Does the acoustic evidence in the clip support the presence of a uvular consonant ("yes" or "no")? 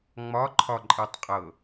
yes